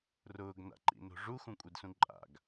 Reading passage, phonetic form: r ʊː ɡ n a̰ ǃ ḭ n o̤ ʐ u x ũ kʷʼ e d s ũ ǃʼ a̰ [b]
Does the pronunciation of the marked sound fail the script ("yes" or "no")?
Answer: yes